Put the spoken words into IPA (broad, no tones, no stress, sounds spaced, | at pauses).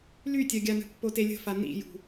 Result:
l y tʲ œ ɡʲ a n ə̤ pː o t e lʲ ə̤ f a n ḭ j ṳ